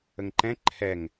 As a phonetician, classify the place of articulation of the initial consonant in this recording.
velar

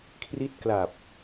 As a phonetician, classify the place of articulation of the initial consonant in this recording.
velar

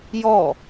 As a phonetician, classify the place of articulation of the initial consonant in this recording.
palatal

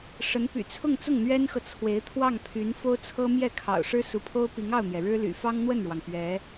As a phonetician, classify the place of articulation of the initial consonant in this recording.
retroflex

